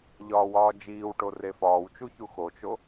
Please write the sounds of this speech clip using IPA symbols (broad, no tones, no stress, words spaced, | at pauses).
ʎɒːwɒːd͡ʒiːwʈo refɒːwt͡ʃu çuxot͡ʃo